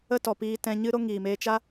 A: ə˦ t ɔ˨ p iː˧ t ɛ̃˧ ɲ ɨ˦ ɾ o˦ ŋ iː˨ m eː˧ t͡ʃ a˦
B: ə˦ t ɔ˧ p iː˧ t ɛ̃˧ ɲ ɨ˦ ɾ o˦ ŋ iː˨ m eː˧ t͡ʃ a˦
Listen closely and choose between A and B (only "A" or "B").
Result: A